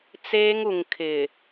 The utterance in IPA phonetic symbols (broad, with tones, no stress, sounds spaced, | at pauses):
t͡s eː˦ ŋ u˨ ŋ kʰ ɪ˨